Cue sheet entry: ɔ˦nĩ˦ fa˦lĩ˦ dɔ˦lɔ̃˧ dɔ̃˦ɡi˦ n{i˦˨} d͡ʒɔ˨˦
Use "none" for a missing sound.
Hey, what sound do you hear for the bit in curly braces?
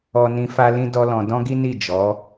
i˦˨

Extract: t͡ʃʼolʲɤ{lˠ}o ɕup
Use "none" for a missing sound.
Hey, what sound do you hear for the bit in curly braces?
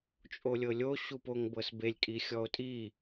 lʲ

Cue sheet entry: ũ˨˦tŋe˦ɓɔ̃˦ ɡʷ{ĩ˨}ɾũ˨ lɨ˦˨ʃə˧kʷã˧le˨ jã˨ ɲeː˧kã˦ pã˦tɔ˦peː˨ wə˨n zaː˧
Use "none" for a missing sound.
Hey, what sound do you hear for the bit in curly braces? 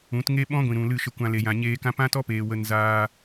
ĩ˨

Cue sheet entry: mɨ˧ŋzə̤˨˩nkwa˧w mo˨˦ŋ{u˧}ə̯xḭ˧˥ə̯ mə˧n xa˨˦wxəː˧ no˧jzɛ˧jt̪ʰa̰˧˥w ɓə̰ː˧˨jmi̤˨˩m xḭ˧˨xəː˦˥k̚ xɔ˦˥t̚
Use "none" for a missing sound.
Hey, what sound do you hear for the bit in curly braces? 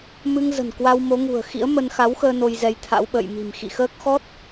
ṳ˨˩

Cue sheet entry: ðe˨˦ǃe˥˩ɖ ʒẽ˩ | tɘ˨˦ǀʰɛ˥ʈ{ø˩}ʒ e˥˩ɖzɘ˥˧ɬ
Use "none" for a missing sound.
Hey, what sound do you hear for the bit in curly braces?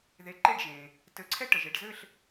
ə˩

